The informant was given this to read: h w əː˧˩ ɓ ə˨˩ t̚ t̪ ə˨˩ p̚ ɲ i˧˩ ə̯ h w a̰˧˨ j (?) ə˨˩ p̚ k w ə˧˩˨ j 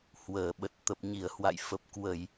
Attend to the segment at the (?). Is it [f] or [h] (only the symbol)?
f